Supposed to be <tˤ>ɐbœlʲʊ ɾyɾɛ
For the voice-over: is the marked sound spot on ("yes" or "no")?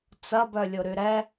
no